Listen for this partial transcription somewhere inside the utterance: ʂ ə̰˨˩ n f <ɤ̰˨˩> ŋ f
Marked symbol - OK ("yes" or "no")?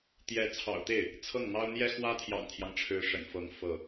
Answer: no